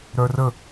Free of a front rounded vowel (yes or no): no